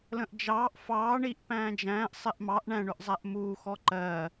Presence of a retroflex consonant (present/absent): present